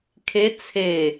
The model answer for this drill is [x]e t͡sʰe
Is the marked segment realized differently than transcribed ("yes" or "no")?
yes